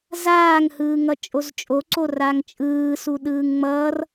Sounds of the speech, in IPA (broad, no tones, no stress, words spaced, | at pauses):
zaːŋhɯːŋʌ t͡ʃʼozt͡ʃʼoǀo raŋt͡ʃʼɯːsu ɗɯːŋŋ͡mʌːr